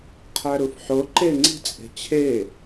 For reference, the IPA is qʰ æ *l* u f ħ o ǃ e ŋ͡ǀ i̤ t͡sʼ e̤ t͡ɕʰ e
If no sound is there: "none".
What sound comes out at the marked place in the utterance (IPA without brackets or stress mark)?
ɾ